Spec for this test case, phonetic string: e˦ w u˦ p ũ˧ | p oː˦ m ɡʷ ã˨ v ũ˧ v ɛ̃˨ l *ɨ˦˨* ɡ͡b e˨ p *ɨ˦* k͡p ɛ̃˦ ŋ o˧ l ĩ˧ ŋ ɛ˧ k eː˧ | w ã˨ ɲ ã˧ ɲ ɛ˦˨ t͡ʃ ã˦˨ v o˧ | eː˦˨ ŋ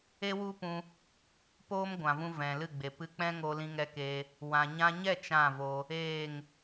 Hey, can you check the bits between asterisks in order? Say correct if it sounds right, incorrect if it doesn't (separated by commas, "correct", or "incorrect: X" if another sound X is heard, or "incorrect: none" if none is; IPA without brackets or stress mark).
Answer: correct, incorrect: ɨ˧